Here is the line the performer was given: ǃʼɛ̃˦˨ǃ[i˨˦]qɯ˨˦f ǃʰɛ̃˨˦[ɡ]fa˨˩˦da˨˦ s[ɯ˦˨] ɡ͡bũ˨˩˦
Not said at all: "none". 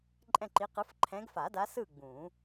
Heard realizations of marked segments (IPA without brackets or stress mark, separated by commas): i˨˦, ɡ, ɯ˦˨